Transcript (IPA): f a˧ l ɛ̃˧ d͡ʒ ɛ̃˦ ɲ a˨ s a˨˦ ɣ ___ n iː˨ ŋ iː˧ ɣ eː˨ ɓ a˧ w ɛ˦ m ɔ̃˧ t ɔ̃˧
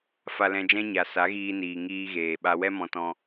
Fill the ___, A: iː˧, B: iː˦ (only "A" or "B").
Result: A